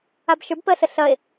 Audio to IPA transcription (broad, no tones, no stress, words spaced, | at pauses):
abʃə˞bpɜɬə ɬɐe̯